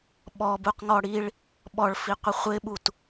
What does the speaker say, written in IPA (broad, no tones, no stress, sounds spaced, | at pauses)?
ɓ ɔ b u q ŋ ɔ ɽ i ɭ | ɓ ɔ ɭ f i qʷ ɪ χʷ ɪ ɓ u t